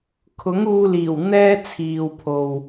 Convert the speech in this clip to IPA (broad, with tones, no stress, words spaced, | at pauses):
kʰʊ˨˥ŋuː˧liː˨˩w n̪ɛː˥t͡sʰiː˨wpʰo˨w